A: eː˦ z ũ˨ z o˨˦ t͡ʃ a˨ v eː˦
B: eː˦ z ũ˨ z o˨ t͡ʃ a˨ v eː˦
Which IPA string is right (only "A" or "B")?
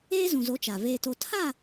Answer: A